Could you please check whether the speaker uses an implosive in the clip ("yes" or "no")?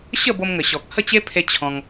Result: no